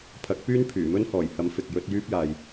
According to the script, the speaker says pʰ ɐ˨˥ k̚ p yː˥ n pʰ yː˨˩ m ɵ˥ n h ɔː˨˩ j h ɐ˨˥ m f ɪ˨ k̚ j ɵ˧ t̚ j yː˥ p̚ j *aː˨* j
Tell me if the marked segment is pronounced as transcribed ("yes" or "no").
yes